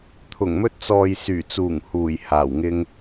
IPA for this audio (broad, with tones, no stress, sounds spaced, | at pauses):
t̪ʰ ʊ˨˩ ŋ m ɵ˧ t̚ t͡s ɔː˨ j s yː˨˩ t͡s uː˨˩ ŋ h uː˨˩ j h aː˨˩ w ŋ ɪ˧ ŋ